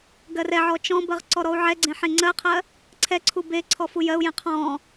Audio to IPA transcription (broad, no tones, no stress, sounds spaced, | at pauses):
ɡ ɜ r ɛ ʕ ɔ t͡ʃ ɔ̃ b ɜ ʁ ǀ ɔ ɾ ɔ u̯ ʕ ɛ ɡ͡ǀ ẽ ħ ẽ ŋ͡ǀ ɜ qʰ ɜ | ǀʰ ɛ ǀʰ u b e ǀʰ ɔ f u j ɜ u̯ j ẽ qʰ ɔ̃